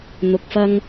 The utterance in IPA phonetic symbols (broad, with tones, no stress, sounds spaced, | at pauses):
n̪ ʊ˨ k̚ f ɐ˧ ŋ